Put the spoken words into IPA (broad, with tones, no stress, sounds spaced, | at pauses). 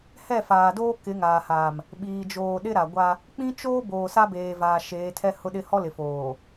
h ɛ˦˨ f aː˨ d oː˦ k ɪ˨˦ ŋ aː˨ h aː˨ m | ɓ iː˨ d͡ʒ oː˨ ɗ ɪ˦ ɾ a˨ ɡʷ a˦ | k͡p ĩ˦ t͡ʃ oː˦ b oː˨ s a˦ b eː˨ v aː˨ ʃ eː˨˦ tʰ ɛ˦ h ʊ˦ ɗ ɪ˦ h ɔ˦ l ɪ˨ f oː˨